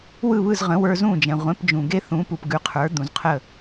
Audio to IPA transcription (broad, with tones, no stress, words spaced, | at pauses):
wɯ˥˩βɯ˥˩z ʁə̃˩˥wə˞˧ zũ˥˩d͡ʒɛ̃˩ ʁʷẽ˩˥p d͡ʒũ˩ɡe˥ θũ˩˥pu˩pɡʉ˩˥qʰə˞˩˥ d̪ũ˩zqʰə˥˩